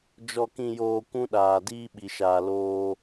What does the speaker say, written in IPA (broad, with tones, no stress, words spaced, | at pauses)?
d͡ʒɔ˨kĩ˨joː˨ kʷũ˦ɗaː˨ diː˦ɓi˨ʃaː˨ loː˦